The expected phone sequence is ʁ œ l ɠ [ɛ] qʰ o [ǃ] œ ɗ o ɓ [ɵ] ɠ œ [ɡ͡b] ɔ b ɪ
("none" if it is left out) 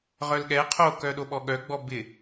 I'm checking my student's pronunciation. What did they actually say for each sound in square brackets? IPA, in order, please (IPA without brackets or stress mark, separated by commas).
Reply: ɛ, k, ɔ, ɡ͡b